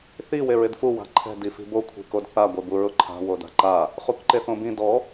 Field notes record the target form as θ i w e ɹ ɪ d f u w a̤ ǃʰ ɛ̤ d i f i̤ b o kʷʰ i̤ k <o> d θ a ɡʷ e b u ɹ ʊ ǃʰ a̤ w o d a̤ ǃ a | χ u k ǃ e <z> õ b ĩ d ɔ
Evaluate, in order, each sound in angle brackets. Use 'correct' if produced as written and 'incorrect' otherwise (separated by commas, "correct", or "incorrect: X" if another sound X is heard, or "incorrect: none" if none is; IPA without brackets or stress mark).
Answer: correct, incorrect: θ